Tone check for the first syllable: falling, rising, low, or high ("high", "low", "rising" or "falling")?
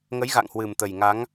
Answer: rising